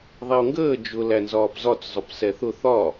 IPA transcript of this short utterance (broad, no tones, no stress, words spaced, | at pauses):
ðˤɛʊ̯ŋɡəː d͡ʒʊ lænzɒːpzɒt͡s zˤʊpsɛθʊ θɒ